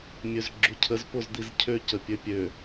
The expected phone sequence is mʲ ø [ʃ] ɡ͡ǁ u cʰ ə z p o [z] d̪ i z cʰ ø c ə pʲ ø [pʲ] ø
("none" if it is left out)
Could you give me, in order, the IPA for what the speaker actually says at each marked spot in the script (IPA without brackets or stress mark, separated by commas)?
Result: z, z, pʲ